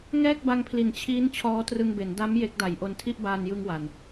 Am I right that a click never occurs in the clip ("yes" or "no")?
yes